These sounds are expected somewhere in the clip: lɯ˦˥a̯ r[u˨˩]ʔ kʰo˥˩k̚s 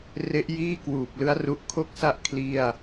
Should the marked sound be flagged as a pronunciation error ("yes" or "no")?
yes